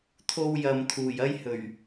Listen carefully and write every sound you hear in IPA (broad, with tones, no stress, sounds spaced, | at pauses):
t̪ʰ o˧ w j ɐ˨ m t̪ʰ uː˨˩ j ɐ˥ j h ɵ˨˩ ɥ